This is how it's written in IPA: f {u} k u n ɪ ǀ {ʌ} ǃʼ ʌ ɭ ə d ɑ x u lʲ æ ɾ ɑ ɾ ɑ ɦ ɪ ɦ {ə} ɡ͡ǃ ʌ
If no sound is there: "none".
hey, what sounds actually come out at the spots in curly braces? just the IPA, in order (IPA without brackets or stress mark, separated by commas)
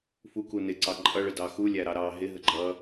u, ɑ, ə